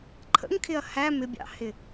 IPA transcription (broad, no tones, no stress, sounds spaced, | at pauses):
ǃʰ ə̰ ŋ kʰ ɪ ɐ̯ h æ m ɪ bʲ ɑ̰ h ɪ